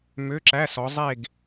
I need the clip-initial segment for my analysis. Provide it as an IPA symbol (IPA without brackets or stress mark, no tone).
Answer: m